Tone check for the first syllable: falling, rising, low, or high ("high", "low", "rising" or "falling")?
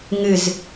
falling